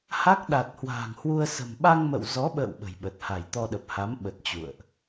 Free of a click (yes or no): yes